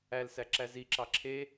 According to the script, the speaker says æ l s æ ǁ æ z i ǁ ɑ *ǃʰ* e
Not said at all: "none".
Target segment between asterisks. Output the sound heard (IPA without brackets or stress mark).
ǁʰ